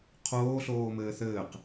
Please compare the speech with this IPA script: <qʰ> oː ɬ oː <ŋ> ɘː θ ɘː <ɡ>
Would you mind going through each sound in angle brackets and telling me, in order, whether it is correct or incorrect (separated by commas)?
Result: correct, incorrect, incorrect